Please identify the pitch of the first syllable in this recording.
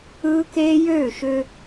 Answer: high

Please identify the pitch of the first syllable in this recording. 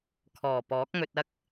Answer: low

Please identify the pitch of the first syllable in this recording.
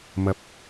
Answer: low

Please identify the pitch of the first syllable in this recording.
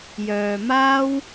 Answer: low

